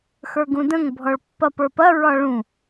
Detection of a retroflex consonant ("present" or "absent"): present